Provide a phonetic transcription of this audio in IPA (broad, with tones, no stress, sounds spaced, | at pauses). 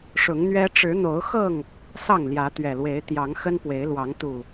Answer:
ʂ ʊ˨˦ ŋ n̪ ɥ ɛ˦ ʈ͡ʂ ɻ̩˨˦ n̪ o˨˦ ʊ̯ x ɤ˥˨ ŋ | s ɑ˥˨ ŋ l j ä˨˦ t̪ ɥ ɛ˨˩ l w e˨˦ ɪ̯ t̪ j ɑ˨˦ ŋ x ə˦ n p w e˨˦ ɪ̯ l w ɑ˨˦ ŋ t̪ u˨˩